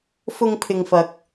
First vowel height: high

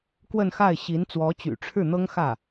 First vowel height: mid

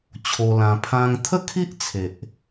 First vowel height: mid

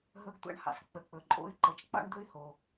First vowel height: mid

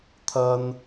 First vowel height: low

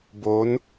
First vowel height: mid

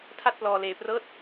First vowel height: low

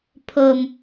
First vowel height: mid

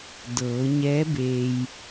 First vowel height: mid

